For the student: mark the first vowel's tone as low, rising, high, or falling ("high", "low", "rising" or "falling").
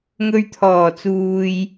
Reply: low